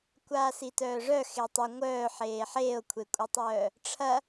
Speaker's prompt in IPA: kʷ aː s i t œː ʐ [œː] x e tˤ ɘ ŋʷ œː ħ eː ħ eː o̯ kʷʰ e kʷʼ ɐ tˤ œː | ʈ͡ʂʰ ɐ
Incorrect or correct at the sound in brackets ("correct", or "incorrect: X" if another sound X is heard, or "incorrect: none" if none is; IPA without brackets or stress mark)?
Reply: incorrect: œ